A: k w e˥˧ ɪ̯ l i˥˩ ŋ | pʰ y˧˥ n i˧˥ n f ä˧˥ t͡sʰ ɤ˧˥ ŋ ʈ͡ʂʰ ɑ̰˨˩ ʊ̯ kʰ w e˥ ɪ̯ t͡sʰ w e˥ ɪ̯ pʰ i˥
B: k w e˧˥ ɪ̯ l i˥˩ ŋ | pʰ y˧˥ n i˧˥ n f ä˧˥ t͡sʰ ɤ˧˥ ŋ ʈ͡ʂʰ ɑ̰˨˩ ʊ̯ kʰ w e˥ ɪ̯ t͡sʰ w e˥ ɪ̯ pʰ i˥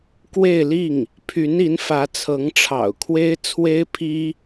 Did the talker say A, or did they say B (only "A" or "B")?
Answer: A